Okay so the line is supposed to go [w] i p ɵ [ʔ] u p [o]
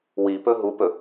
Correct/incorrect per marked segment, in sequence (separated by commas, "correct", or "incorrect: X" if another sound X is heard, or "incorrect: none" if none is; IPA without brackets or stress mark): correct, incorrect: ɦ, incorrect: ɵ